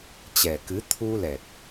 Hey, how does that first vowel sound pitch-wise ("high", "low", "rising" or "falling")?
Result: low